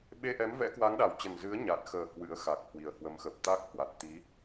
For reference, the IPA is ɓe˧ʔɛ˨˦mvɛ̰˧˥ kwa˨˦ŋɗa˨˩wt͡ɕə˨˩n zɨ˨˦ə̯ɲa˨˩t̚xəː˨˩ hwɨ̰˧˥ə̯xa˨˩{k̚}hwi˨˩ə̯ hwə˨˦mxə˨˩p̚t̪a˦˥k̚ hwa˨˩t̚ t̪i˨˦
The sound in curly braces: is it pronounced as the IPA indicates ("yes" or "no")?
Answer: yes